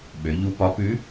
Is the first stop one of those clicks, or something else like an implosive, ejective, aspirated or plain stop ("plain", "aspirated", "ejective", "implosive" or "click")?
implosive